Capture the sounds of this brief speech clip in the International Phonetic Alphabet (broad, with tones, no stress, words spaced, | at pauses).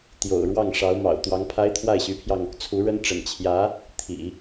t̪jo̰˨˩ʊ̯ɻwɑ˥˩ŋ ʂɑ˧˥ʊ̯ mɑ̰˨˩ʊ̯t̪wɑ˧˥ŋpʰa˥ɪ̯ t̪ʰwa˥˩ɪ̯ɕy˧˥pʰjɑ˧ŋ | t͡sʰu˧˥ɻə˥n ʈ͡ʂə̰˨˩nt͡ɕʰjä˧˥ | t̪ʰḭ˨˩˦